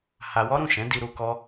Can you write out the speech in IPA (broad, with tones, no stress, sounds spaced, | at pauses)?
h a˧ w ɔ˦ ɾ ũ˦˨ ʃ ɛ̃˨˦ d i˧ ɾ u˧ k ɔ˦